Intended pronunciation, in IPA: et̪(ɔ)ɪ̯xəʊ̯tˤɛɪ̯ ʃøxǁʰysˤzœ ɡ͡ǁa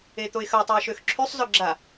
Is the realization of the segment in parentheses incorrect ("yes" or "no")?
yes